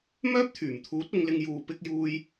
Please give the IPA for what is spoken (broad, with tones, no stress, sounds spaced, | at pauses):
m œː˥ p̚ t̪ʰ yː˨˩ m t̪ʰ uː˨˥ t̚ ʊ˨˧ ŋ l ɪ˧ ŋ j uː˨˧ p ɪ˧ k̚ j uː˧ j